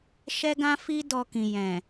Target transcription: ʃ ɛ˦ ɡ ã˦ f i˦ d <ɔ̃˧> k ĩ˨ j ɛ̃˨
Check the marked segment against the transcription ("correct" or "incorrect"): incorrect